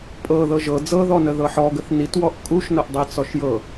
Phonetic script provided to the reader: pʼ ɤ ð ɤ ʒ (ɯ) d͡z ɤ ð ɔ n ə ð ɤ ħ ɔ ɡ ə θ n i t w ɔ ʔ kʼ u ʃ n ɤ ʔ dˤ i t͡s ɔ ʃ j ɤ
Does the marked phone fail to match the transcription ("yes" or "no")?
yes